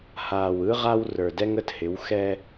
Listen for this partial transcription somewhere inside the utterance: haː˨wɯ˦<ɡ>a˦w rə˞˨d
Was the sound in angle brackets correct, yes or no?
no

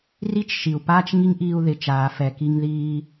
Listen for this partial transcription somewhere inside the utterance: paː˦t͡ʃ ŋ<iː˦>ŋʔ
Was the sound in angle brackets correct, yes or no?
no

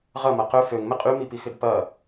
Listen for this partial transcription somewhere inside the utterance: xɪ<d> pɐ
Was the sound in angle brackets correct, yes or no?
yes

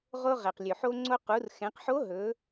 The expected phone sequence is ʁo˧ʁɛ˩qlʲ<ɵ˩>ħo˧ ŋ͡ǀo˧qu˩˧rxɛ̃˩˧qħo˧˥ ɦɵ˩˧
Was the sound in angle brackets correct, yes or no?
yes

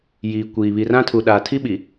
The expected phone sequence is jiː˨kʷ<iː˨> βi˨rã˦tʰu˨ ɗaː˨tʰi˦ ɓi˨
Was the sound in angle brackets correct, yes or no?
yes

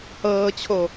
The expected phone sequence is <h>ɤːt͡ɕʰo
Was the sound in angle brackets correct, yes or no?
yes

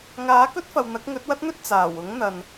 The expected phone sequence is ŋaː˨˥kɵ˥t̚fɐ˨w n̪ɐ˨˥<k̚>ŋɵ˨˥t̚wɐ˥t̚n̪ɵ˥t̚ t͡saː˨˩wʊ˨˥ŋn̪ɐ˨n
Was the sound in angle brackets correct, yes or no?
yes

